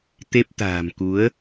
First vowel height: mid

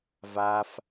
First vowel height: low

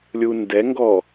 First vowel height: high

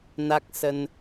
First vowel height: low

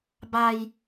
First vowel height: low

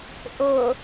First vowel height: high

